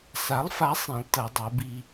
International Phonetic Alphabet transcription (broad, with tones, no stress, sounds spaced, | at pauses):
s a˨˥ lˠ f a˨˥ sˤ ĩ˩˧ lˠ t ɐ˩˧ dˤ o˩˧ b i˧